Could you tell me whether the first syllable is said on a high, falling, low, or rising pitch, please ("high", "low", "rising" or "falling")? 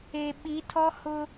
low